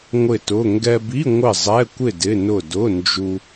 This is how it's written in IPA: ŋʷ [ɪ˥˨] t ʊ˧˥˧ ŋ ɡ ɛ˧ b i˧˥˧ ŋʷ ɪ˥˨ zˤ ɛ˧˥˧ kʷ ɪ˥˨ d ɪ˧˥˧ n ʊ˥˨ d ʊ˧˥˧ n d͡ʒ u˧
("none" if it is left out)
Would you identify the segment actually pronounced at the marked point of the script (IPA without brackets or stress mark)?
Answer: ɪ˥˨